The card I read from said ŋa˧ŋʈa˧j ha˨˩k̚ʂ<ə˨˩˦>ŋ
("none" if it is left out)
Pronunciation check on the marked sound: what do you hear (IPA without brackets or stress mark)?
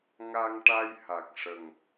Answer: ə˨˩